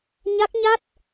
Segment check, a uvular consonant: absent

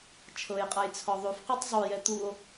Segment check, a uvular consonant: present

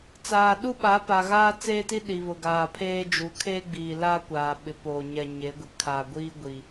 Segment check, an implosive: present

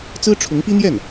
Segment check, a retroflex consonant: present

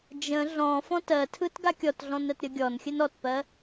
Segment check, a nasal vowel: present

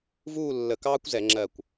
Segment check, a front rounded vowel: absent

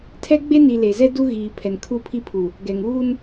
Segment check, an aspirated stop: present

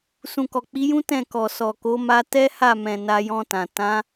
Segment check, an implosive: absent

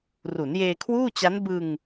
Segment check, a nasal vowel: absent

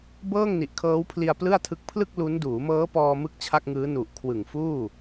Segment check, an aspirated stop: present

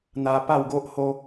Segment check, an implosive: absent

